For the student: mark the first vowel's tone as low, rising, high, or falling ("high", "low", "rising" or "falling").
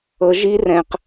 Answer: rising